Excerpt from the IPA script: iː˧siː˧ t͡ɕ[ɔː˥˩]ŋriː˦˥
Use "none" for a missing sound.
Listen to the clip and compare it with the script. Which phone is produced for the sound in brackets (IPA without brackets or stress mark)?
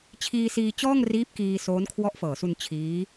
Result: ɔː˥˩